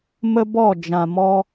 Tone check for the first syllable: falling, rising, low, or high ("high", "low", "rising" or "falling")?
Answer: high